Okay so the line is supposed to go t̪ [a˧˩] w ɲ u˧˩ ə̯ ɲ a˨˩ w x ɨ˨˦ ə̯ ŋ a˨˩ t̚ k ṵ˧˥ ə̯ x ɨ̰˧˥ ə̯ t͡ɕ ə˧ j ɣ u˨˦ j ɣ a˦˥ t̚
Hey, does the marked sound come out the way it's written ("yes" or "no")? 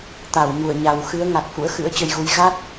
yes